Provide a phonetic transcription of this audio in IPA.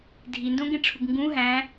dʱ i n d õ ɡ ẽ ʈ͡ʂʰ u ɡ ŋ ɡ ũ ɦ æ̃

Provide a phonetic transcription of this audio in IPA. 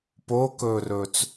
p o k ɵː r ɵː t͡s

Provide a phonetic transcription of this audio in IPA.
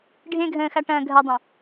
ɖʱ ẽ ɡʱ ə̃ː x a ʈ ɐ̃ː ɡʱ ɐ dˤ ɐ̃

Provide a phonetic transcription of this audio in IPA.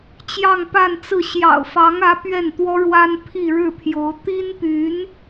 t͡ɕ j ɑ˥˧ ŋ p a˥˧ n t͡s ɹ̩˥˩ ɕ j ɑ̰˨˩ ʊ̯ f ɑ˧˥ ŋ ä˧˥ p ɥ ɛ˥˩ n t̪ w ɔ˥ ɻ w a˥ n pʰ i˥˧ ɻ ɻ̩˥˩ pʰ j o˧˥ ʊ̯ t̪ i˥ n p y˧˥ n

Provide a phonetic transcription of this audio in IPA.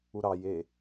u ɾ ɑ j e

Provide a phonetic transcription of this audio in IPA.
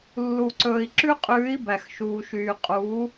lː u˨ ǀ ɵː˨ i̯ ǁ ʉ˦ qʼ ʉː˨˦ i̯ b æ˨ x ʃ uː˨ ʃ yː˨ qʼ uː˨˦

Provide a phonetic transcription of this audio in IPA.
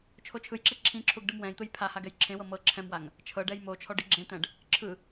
t͡ʃʰ o t͡ʃʰ ɯ j ǁ e ǁʰ ĩ ǁʰ u ɡ ɖ ɯ m w ɛ̃ j t̪ ɯ j pʰ a h a ɡ ɛ j ǁʰ ẽ w ɤ m ɤ ǁʰ ɛ̃ m w a ŋ | t͡ʃʰ ɤ ɖ ɛ j m o t͡ʃʰ ɔ ɖ i ɡ͡ǁ ẽ t̪ ɛ̃ ɖ | ǁʰ ɯ

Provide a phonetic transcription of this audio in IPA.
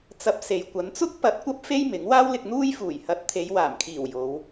t͡s ɐ˧ p̚ s e˨ j kʷ ɐ˨˧ n t͡s ʊ˥ k̚ p ɐ˨˥ t̚ kʷ ɐ˧ p̚ f e˥ j m ɪ˨˥ ŋ w aː˥ w l ɪ˧ k̚ n̪ uː˥ j f uː˨˩ j h ɐ˨˥ t̚ t̪ʰ e˨˧ j w aː˨˩ m kʰ iː˨˩ w j o˨˧ w

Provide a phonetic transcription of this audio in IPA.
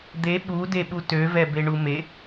d̪ e ɓ u d e ɓ u t ø v ɛ b e ɳ u m e

